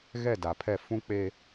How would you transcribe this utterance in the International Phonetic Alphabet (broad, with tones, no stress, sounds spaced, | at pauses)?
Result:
ɣ ɛ˦˨ d a˨ pʰ ɛ˦˨ f ũ˦ k͡p e˦